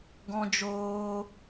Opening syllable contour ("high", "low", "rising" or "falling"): high